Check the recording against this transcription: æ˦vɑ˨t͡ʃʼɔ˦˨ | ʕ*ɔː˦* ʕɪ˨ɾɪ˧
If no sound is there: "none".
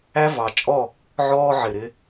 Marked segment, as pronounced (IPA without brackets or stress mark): ɔː˦